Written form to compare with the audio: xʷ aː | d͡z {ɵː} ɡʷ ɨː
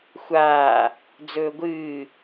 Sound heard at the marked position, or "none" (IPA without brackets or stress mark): ɵː